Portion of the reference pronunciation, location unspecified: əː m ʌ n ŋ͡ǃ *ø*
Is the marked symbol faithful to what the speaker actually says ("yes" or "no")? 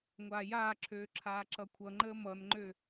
yes